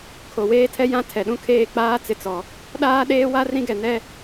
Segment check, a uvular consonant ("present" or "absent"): absent